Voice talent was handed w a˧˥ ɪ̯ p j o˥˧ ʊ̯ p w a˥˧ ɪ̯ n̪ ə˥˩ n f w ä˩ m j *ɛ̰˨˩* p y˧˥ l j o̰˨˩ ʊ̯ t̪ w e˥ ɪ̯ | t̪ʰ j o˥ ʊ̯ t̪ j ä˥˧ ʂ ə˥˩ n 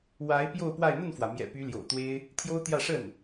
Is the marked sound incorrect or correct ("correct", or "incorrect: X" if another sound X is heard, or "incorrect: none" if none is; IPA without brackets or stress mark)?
correct